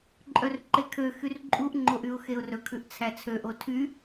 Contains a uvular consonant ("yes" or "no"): no